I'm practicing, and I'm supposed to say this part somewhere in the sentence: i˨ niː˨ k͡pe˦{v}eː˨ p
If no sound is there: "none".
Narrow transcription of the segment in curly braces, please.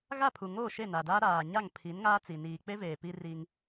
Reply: v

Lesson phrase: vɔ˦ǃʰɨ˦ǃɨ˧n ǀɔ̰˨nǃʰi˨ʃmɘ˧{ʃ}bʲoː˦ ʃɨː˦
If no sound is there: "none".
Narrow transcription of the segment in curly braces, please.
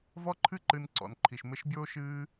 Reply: ʃ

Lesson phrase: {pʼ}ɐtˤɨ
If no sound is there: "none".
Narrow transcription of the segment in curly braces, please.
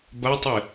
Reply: b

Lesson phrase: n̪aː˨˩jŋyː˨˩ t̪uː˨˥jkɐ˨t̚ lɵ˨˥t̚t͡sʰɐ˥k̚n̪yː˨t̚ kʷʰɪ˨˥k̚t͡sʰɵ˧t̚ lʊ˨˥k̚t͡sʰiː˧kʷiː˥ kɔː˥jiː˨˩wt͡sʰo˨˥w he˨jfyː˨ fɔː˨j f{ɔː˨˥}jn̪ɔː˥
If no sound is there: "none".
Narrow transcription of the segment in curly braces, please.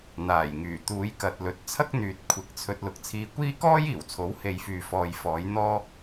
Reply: ɔː˨˥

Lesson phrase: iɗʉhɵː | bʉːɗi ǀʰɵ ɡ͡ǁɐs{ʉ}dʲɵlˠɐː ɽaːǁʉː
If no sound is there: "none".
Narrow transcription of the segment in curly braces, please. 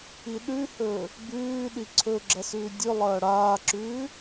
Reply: ʉː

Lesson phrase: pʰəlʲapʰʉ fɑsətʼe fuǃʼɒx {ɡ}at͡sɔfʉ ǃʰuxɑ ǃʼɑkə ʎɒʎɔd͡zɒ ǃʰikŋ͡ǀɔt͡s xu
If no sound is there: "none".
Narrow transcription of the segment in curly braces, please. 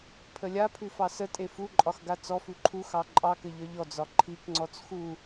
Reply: ɡ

